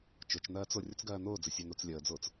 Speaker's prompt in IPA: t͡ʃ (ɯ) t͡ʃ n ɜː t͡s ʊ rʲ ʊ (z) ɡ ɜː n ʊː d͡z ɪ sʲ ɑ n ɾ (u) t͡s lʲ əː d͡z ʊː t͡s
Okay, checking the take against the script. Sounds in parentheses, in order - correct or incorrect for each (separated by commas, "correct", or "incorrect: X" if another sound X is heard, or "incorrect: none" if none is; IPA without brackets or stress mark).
incorrect: ʊ, incorrect: t͡s, correct